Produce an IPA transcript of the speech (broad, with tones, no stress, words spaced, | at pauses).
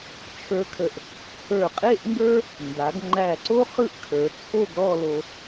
t͡ʃʰə˞˧kʰə˧˩ʔ | hə˞˧˩qʼe˥˧ʔŋɡə˞˥ | nda˩˧ɡŋ͡ǃæ˧˩ǀo˥ χɯ˥ʔkʰə˞˩˧t͡sʰo˥˧ɡ ɾɔ˥˧lo˧